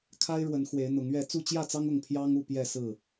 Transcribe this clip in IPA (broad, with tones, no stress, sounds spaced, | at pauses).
kʰ a˦ ɪ̯ ɻ w ə˨˦ n x w e˨˦ ɪ̯ n̪ ʊ˨˦ ŋ ɥ ɛ˥˨ t͡s u˥˨ t͡ɕ j ä˥˨ t͡s ɑ˦ ŋ ʊ˥˨ ŋ pʰ j ɑ˦ ŋ u˥˨ p j ɛ˥˨ s ɹ̩˥˨